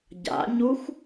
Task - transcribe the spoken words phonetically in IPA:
ɟa̰ɲux

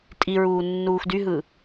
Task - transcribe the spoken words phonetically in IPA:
tʼiɹuː nːuːxdyɦɯ

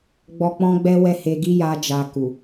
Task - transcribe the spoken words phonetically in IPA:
ɡ͡bɔ˧ k͡pɔ̃˦ɡ͡bɛ˦wɛ˦˨he˧ ɡi˦ ja˦d͡ʒa˧ku˨

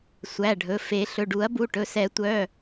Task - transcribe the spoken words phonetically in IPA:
sʷæ˩˧˩ɖʱɵ˩˧˩fe˨˩˦ ɬɵ˩˧˩ɖu˨˩˦ɐ̯bu˩˧˩ʈɵ˩˧˩ sɛ˨˩˦tʷœ˩˧˩

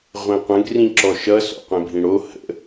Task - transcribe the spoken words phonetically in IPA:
ʁʷẽqʷə̃ɡ rĩǁɔʃʌ sɔ̰qʷẽbʱĩɽo hə̰

